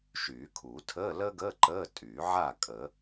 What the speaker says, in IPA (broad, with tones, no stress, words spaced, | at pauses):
ʃyː˨˩˦kʰuː˨˩˦ tʰəː˧˥˧ləː˥ɡəː˧˥˧ ǃəː˧˥˧ tʼyː˨˩˦ʕaː˥˨ kʼəː˨˩˦